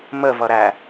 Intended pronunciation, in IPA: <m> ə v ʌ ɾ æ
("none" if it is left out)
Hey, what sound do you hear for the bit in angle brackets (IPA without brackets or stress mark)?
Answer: m